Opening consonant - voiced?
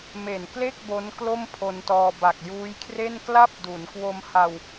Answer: yes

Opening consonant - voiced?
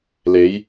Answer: yes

